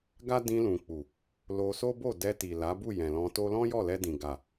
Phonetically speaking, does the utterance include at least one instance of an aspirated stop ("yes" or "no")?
no